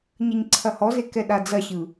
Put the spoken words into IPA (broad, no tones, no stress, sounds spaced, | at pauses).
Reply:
ɲ ɐ ɲ ǀʰ ɐ h ɔ z e k ɛ ɗ a d͡z ɐ ɕ ɯ